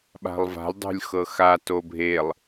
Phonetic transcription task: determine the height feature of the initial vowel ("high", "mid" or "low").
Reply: low